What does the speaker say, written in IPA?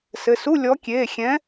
sɘ˩˧˩su˧˥˧ lʲɔ˨˦kʲeː˩˧˩ xʲɛ̃˨˦

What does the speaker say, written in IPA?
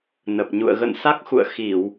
nə˨˩p̚ɲṵ˧˨ə̯ ɣə̰˧˨nsa˦˥k̚xṵ˧˨ə̯ xi˧˩˨w

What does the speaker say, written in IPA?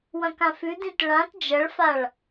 wɐ̃kãfʉdĩt ɭãt d͡ʒɐɭfaɭ

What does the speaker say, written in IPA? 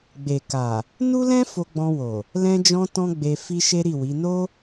ɡ͡be˨ka˨ | nu˦lɛ̃˦ fo˧ɡ͡bɔ̃˧wo˨ | lɛ̃˧d͡ʒɔ̃˧ tɔ̃˦ɡ͡be˧ fi˧ ʃe˦ɾi˦˨wi˨˦ no˦

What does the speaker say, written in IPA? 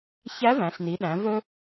çæ˧˥væ̃˩˧ɬni˩˧ɗæ̃˩˧ vɵ˧

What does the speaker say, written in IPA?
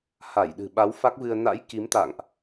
ha˧˩j ɗɨ̤˨˩ɓa˨˦w fa˦˥k̚vɨ˧ə̯ na̰˧˥j ki˨˦mt̪a̰˧˨ŋʔ

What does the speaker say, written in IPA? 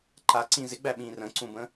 ǃaǀĩ zɪɡ͡bæɓĩːr ə̃ǀũbə̃

